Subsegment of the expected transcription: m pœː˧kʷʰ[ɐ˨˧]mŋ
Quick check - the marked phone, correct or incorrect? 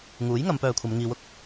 correct